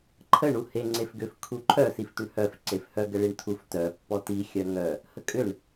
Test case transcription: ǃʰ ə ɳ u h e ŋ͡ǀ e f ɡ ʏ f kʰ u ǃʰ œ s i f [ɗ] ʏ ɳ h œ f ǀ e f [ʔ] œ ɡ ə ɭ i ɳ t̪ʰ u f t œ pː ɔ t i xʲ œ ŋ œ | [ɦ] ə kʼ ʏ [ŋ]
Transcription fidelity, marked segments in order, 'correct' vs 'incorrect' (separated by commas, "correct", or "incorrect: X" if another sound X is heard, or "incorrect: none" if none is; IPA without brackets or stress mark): incorrect: t̪, incorrect: h, incorrect: h, incorrect: ɳ